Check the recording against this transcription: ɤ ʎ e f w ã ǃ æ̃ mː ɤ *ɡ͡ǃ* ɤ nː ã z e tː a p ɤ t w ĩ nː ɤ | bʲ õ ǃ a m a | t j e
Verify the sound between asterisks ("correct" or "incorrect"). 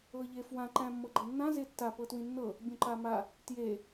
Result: correct